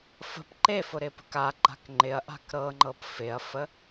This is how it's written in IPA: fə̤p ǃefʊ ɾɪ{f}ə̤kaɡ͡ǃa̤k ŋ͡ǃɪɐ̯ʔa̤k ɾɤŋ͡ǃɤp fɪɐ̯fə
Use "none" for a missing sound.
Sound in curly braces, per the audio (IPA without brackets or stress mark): p